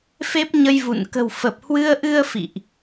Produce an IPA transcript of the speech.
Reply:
f e˦˥ p̚ ɲ ə˧ j v ṵ˧˨ n k ə̤˨˩ w f ə˨˩ p̚ h w ɨ˧ ə̯ ʔ ɨ˧ ə̯ f ḭ˧˨ ʔ

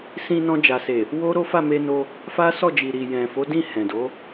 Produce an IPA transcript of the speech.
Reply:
s ĩ˧ n ɔ̃˧ d͡ʒ a˨ s e˨ | w o˦ ɾ o˦ f a˦˨ m e˧ n o˧ | f a˦ s ɔ˦˨ d͡ʒ i˨ ɾ i˨ j ɛ̃˨ f o˨˦ d ĩ˦˨ h ɛ̃˨ d o˨˦

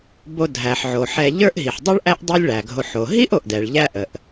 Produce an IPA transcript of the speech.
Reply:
b o˨ dʱ æ˩ ħ ʕ o˩ ħ ɛ˨ ʎ ə˞˦ ʔ ɦ i˩ ħ dˤ i˥ ɭ ʔ æ˥ ʔ dˤ ɛ˦ lʲ ɭ æ˩ ɡʱ o˨ ħ o˩ ɦ i˥ ʔ o˩ ʔ d ɛ˩ ɭ ʎ æ˦ ʔ ə˩ ʔ

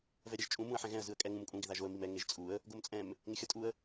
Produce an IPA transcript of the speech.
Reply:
v ɛ ɾʲ ɛ ʒ t͡ʃʼ ũ m ũ ə̯ ħ ɛ̃ ɣ ɛ̃ ə̯ z ɯ ə̯ kʼ ɛ ŋ ũ m kʼ ũ ɡ ɪ ð a ʒ o ə̯ m i m ɛ ŋ e ʒ t͡sʼ u ə̯ | ɡ o m t͡sʼ ɛ̃ m | ŋ ɪ xʲ ʌ tʼ u ə̯

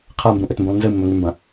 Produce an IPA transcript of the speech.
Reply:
qʰ a m b ũ ʔ ɵ t m b ũ lˠ n z ɨ mː ɵ ŋ ʉ m b ɐ̃

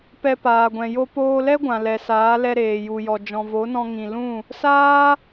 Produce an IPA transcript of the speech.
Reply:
p ɛ˧ p aː˨ ɡʷ ɛ̃˨ j o˧ p oː˧ l ɛ˦ ɡʷ ã˨ l ɛ˨ s aː˨˦ l ɛ˧ ɾ eː˨ j u˨ j ɔ˨ d͡ʒ ɔ̃˨ v o˨˦ n ɔ̃˧ ŋ ĩ˨ l ũ˦˨ | s aː˦

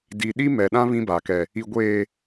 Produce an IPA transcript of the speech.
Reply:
d i˨ ɗ i˦ m ɛ˨ ɗ ã˦ β ĩ˦ b a˨ k ɛ˨ | i˨ ɡʷ eː˨

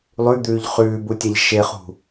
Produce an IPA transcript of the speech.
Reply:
lˠ ʉ d̪ ʉː ʎ χ ʉː b u tʲ a ʎ ʃ e χ ṳ

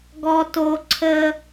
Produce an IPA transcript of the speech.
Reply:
ɡ ɔ˦ t o˦ ǀʰ ə˦

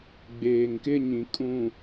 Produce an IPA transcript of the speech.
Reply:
ɡ͡b eː˨ ŋ k ɪ˦ ɲ ĩ˨ kʼ ũ˨

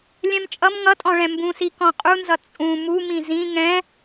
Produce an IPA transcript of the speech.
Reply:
lʲ ɛ̃ m t͡ʃʼ ʌ m ŋ ʌ tʼ ɔ̃ ɭ ɛ̃ m b ũ s i k ɔ̃ qʼ u n z ʌ t͡sʼ ũ m u m ĩ z ĩ ŋ ɛ̃

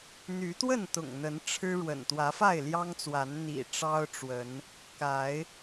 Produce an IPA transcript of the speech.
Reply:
n̪ y˨˦ t̪ w ə˥˨ n t̪ ʊ̰˨˩ ŋ n̪ ə˨˦ n ʈ͡ʂʰ ɻ̩˦ ɻ w ə̰˨˩ n t̪ w ä˨˦ f a˥˨ ɪ̯ l j ɑ˦ ŋ t͡s w a˨˦ n n̪ ḭ˨˩ ʈ͡ʂ ɑ˦ ʊ̯ ʈ͡ʂ w ə˨˦ n | k a˨˦ ɪ̯

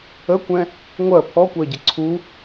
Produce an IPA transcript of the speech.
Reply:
ə kʷ ɛ̃ | ŋʷ ɜ pʰ ɔ kʷ ɜ ɟ ɪ ǀʰ u

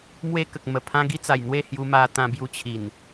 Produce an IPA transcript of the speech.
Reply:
m w e˦ k ə˨ k̚ m ə˨˩ pʰ ã˦ ɡ i˦ t͡s a˨˩ j n̪ w e˥˧ h j u˧ m a˧ t̪ ã˧ b j u˧ t͡ɕʰ i˨˩ n

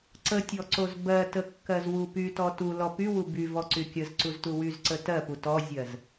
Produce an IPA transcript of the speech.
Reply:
ǀ ə tʲ ɔ ǀ o z b ɜ t ə kː ɜ z w u p y t ɔ t u l ɔ p y w u b y v ɔ ǀ y kʲ ə z ǀ u z t u w y z ǀ ə t ɜ p u t ɔ zʲ ɜ z

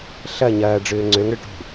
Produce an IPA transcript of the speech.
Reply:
ɬ ɐ ɲ ɐː ɖ͡ʐ ʏː ŋ͡ǀ ø ŋ ɽ ʏ ʈ ṳ

